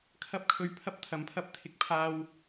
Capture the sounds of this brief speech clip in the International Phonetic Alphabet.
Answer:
kʰ ɐ˥ p̚ kʰ ɵ˧ ɥ pʰ ɐ˥ p̚ t̪ʰ ɐ˨˧ m pʰ ɐ˥ p̚ t̪ʰ ɪ˨˥ k̚ pʰ aː˧ w

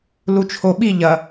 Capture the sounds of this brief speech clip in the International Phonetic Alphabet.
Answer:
l u t͡ʃʰ o ɓ i ʎ ɐ

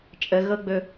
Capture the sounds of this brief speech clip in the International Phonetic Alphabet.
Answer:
t͡ʃʼ ə ɣ ɤ ɡ͡b ɵ

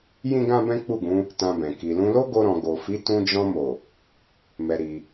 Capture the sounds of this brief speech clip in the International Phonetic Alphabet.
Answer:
j ĩ˦ ɡ ã˦ b ɛ̃˦ k͡p u˦˨ ɡ ũ˨˦ | t ã˧ b ɛ̃˨ k i˨ l ũ˧ l o˦ ɡ o˧ ɾ ɔ̃˨ ɡ o˨ f i˨˦ t ũ˧ d͡ʒ ɔ̃˧ m o˨ | m ɛ˧ ɾ i˧

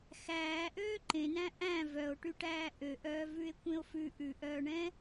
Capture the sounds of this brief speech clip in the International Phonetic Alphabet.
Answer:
x æː ʔ øː ǃ ẽ n æ̃ ʔ æ̃ v œ o̯ ʈ y ʈ æː ʔ ø ʔ œː v ʉ e̯ kʷ ẽ o̯ f ʉ ʔ ʉ ʔ œː ɳ ɛ̃

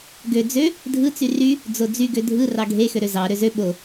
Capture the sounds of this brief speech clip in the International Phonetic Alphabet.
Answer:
ɡ ø d͡z ø | dʱ ɯ t͡s y r y | d͡z o d͡z y ɡ ø dʱ ɯ r ɑ ɡʱ e x ø ɾ ø z ɑ ɾ ø z ø ɓ o

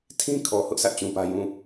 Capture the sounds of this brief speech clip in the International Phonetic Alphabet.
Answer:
tʰ ĩ˦ kʰ ɔ˨ h ʊ˦ ʔ sʰ ä˦ ʔ t͡ɕ ũ˦ p ä˦ j ũ˦˨

